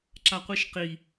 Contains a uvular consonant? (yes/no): yes